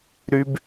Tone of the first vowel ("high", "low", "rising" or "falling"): high